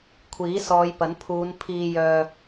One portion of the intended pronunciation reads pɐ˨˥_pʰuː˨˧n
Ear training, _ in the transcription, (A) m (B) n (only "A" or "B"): B